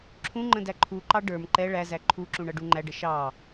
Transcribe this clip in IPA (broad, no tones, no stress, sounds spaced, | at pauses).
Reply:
ǁʰ ũ ŋ͡ǃ ə̃ d æ ǃʰ u ǃ ɑ ɖ ə˞ m ǃ ɛ ɭ æ z æ ǃʰ u ǁ ũ ɳ ʌ ɖ u ŋ͡ǃ æ ɖ ə ʃ ɑ